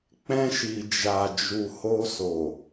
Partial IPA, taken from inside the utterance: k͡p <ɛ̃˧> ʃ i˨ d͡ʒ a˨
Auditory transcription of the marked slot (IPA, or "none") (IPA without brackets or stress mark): ɛ̃˧